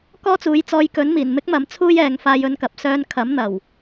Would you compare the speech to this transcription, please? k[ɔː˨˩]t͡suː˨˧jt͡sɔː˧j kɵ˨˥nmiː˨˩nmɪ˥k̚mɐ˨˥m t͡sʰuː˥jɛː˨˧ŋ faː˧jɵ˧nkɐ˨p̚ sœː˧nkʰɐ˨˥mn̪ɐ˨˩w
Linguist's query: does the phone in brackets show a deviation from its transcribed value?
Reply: yes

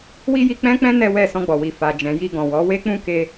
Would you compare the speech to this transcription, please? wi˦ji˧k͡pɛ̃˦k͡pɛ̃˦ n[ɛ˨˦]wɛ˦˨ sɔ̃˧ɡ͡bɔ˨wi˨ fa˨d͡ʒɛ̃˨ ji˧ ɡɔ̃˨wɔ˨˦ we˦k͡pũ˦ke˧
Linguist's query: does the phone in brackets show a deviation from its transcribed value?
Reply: yes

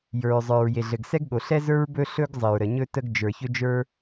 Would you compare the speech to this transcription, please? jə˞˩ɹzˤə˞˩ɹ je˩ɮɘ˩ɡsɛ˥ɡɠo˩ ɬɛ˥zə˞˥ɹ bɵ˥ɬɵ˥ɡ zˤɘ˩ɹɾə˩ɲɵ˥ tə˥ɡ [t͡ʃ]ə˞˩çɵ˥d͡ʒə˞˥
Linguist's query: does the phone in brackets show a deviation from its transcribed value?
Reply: yes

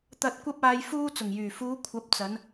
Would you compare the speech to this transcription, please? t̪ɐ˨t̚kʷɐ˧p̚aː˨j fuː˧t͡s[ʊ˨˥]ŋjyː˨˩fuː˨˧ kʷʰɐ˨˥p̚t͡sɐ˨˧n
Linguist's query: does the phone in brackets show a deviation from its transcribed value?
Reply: yes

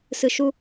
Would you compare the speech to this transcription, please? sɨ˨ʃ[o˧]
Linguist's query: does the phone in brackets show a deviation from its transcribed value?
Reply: yes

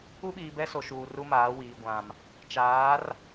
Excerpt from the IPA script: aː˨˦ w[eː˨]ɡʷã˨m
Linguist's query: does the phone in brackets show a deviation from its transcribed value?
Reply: yes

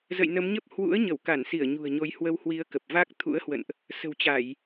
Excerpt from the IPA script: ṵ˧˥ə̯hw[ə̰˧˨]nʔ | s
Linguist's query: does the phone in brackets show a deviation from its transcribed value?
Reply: no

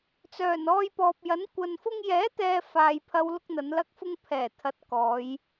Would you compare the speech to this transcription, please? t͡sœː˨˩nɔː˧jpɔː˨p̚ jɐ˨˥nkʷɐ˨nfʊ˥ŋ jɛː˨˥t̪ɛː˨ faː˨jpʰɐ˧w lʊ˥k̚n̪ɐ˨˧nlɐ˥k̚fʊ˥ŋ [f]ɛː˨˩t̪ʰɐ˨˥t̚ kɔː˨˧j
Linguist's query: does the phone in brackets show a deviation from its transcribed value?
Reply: yes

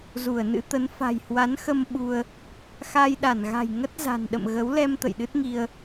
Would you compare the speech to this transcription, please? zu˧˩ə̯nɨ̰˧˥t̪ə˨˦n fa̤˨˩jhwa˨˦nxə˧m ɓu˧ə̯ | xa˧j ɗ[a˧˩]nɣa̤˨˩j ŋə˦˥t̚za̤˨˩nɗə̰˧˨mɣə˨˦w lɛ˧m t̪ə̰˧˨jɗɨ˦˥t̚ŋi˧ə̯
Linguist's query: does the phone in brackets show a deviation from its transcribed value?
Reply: no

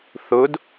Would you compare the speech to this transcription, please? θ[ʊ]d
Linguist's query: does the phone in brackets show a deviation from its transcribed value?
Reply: no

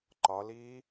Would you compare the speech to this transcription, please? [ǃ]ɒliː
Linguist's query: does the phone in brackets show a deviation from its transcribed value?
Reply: no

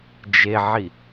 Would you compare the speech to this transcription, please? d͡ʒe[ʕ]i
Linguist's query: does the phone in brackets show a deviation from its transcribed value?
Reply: no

